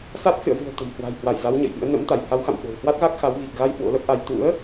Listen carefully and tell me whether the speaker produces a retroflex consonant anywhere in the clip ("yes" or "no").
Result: no